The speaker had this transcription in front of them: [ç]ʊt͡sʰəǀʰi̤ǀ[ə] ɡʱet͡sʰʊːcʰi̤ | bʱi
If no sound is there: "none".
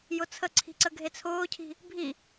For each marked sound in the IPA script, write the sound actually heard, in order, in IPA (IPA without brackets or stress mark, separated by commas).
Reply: j, ə